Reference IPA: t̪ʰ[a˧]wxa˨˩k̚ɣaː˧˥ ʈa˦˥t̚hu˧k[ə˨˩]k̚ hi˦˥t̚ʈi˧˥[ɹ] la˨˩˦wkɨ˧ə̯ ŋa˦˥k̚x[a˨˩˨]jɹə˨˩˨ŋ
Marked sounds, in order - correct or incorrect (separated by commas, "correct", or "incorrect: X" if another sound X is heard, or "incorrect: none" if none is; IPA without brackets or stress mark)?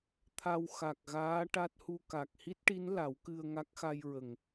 correct, incorrect: a˨˩, incorrect: n, incorrect: a˧